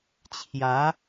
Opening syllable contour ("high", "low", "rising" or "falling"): rising